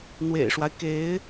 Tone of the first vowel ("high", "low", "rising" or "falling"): low